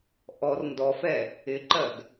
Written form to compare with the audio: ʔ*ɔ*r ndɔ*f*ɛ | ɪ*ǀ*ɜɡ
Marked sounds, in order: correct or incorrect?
correct, correct, incorrect

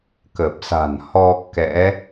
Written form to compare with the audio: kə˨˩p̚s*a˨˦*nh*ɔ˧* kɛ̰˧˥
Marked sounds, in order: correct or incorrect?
incorrect, correct

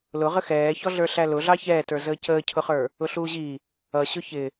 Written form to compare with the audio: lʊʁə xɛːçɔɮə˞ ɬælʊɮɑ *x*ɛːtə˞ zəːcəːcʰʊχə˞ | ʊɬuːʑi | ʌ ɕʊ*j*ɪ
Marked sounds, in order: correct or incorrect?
incorrect, incorrect

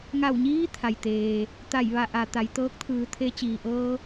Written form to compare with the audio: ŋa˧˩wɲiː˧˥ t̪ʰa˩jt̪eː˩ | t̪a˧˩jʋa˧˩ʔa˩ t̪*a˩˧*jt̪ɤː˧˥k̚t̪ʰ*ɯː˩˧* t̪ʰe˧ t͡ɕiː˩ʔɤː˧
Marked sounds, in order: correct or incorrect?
correct, correct

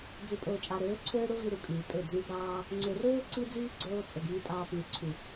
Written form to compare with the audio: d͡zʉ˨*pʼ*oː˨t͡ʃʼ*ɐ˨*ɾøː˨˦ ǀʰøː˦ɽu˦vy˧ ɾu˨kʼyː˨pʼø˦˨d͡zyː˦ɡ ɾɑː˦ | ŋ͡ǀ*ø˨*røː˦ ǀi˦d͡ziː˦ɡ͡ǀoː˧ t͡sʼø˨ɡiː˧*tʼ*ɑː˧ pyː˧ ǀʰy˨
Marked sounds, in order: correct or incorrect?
correct, incorrect, correct, correct

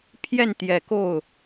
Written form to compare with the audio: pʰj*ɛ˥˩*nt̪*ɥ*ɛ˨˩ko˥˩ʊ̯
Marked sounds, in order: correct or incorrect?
correct, incorrect

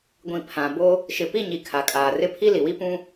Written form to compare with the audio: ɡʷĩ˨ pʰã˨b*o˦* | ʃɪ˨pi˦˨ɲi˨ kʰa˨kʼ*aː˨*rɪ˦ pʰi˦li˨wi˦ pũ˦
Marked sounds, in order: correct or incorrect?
correct, correct

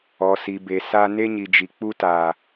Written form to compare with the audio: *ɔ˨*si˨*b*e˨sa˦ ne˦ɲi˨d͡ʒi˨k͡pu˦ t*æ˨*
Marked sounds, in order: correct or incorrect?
correct, correct, incorrect

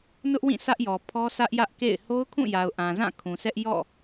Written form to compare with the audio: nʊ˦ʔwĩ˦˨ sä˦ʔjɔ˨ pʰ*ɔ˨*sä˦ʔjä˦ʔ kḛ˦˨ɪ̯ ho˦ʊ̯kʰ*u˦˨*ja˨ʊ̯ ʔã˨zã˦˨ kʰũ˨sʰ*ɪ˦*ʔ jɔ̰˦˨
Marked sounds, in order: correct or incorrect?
incorrect, incorrect, incorrect

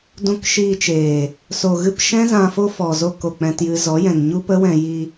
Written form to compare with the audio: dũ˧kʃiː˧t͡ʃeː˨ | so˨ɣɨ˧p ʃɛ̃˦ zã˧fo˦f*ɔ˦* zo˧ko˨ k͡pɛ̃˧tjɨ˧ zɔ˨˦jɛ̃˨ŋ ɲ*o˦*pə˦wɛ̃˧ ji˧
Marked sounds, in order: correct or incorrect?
incorrect, incorrect

